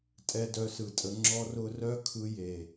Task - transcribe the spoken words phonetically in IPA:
tʼ ɛ˧ d œ˧ s ɯ˨ tʼ ə˧ ŋ͡ǁ ɔ˦ r ʊ˦ r œ˦ kʰ ɯ˧ j e˨

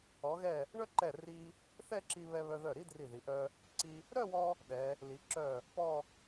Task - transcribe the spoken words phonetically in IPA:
ɔ˩˧ ɣ ɛ˧˩ | ɳ œ˥ ǃ ɛ˧˩ r i˧ | θ ɛ˥˧ ǁ i˧ β ɛ˧ β œ˧ ð œ˧˩ ɾ i˥ d r i˧˩ ð i˩˧ ʔ œ˧ | ǀ i˧ | ɾ œ˥˧ w ɔ˧ | ɗ ɛ˩˧ | l i˩˧ ǁ œ˧˩ | p ɔ˥˧

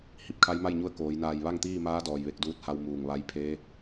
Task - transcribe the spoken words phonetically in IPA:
h i˧˩ p̚ kʰ a˧˥ j m a˥˨ j ɲ u˧˥ ə̯ k oː˩˧ j n aː˧˩ j ʋ a˥˨ ŋ t̪ iː˥˨ m aː˧˥ d ɔː˩ j ʋ e˧ k̚ d uː˧˥ t̚ h a˧ w m uː˧˩ ŋ ʋ a˧˥ j pʰ eː˧˥

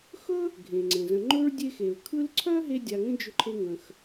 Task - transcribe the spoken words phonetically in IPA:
x ɵ˥ | ɡʱ ẽ˩ ŋ͡ǀ ẽ˩ z ə̃˨ ŋ͡ǃ ɵ˥ ɹ dʲ e˦ x e˩ ɹ kʰ ɯ˦ l ǀʰ œ˥ ɦ e˦ dʲ a˨ ŋ ə̃˥ d͡ʒ ʏ˦ ǃʰ e˦ ŋ ə̃˩ x

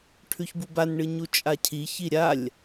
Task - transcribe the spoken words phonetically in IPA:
ʈʰ ʉ ç b u b a n ɳ ɨ ɲ u t͡ʃʼ a cʰ i ç i ɾʲ a lʲ

